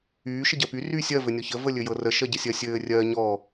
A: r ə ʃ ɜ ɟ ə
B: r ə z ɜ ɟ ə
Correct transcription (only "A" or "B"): A